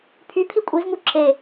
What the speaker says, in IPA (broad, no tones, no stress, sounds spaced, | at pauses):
pʰ y pʰ i kʷʼ i z ŋ u ǁ e